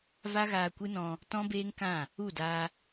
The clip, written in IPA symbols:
v a˦ ɣ aː˧ kʷ ɨ˦ n ɔ̃˧ | t ɔ̃˦ b eː˦ ŋ k ã˦˨ | u˦˨ d aː˧

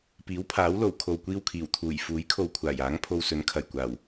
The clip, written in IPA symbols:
p iː˨˥ w pʰ aː˨˥ w l o˨˩ w kʰ o˨ w kʷ iː˧ w kʰ iː˨˩ w t̪ʰ uː˨˩ j f uː˨˥ j kʰ o˨ w kʷʰ aː˨˩ j aː˨˥ ŋ pʰ o˧ w s ɵ˨˥ n kʰ ɐ˨˩ j kʷ aː˨˩ w

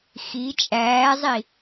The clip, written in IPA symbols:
x i t͡ʃʼ æː zˤ i

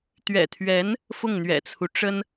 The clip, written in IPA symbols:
t̪ ɥ ɛ̰˨˩ t̪ʰ ɥ ɛ˧˥ n | f ʊ˥˩ ŋ n̪ ɥ ɛ̰˨˩ t͡sʰ u˦ ʈ͡ʂ ə˥ n

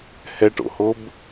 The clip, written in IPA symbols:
h ɛ ʈ o̰ h o b

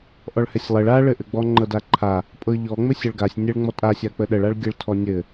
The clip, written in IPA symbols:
ʔ ɔ ɭ h ɛ sʲ lˠ ɘ ɭ a ɭ ɘ ʔ ɘ ɡ͡b ɔ ŋ͡ǃ ɤ d a ǃʰ a | pʼ ɤ ʎ ɔ ŋ͡m ɘ sʲ ɤ ɭ ɡ a sʲ nʲ ɘ ɭ ŋ͡m ɔ tʼ a sʲ a k͡p ə ɗ ə ɭ a ɭ ɡʲ ɘ ɭ tʰ ɔ nʲ ɘ

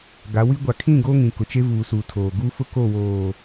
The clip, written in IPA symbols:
ɡ a˨˦ w i˦ ɡʷ a˨ kʰ ĩ˦˨ ɡ oː˦ ŋ ĩ˨ k ʊ˨ t͡ʃ e˦ v uː˨ s uː˨ tʰ oː˨ ɡ uː˦ f ʊ˦ k o˦˨ w oː˨

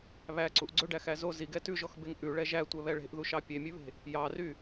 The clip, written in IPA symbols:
β æ ǀ u ʔ ɡ͡ǀ ɵ ɖ æ x æ z o z i ɡ ɛ t ʉ ʒ ɔ x b e ŋ ʔ ʉ ɭ ɛ ʒ æ tʷ ɛ β ɛ ɭ e̤ ʔ ð u ʃ ɑ pʲ e mʲ ʉ β e̤ | j ɑ r y

